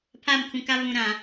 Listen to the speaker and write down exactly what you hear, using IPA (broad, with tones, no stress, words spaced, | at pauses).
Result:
pʰa˦˨mkʰũ˨ka˦ βũ˨ɾã˨